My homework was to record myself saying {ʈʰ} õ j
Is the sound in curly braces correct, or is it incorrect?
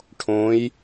correct